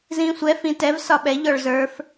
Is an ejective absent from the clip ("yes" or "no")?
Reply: yes